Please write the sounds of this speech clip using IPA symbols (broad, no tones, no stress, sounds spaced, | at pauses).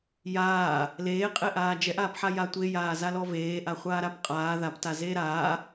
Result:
j aː | l eː qʼ e ʔ aː d͡ʒ ɛ ʔ aː p ħ a j a tʷ e j aː z a l ɔ v eː ʔ a χʷ aː ɾ a p qʼ aː ð a p t a z eː ɾ aː